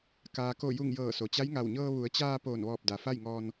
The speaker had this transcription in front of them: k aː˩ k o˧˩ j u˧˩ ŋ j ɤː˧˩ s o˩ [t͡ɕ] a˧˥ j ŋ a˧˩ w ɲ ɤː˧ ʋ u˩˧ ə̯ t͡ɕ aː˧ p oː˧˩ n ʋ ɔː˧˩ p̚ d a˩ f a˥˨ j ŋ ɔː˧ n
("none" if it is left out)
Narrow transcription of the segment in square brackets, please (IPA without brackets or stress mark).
t͡ɕ